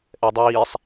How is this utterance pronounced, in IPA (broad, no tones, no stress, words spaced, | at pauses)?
ʔɛdˤiːsˤ